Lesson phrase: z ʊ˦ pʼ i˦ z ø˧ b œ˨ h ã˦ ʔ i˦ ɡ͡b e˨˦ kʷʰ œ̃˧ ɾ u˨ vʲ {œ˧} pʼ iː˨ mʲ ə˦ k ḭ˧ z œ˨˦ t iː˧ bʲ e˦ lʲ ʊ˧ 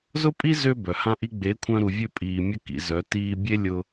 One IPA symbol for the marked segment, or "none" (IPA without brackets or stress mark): ø˧